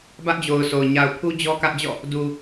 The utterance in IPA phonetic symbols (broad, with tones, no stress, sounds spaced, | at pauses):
b ä˦ ʔ d͡ʑ o˨ ʊ̯ s o˨ ʊ̯ ɲ a˨ ʊ̯ pʰ u˦ d͡ʑ ɔ˦ k ä˦ ʔ d͡ʑ ɔ̰˦˨ | d u˨